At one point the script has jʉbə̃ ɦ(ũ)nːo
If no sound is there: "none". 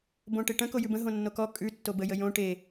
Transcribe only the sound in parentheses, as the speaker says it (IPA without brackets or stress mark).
õ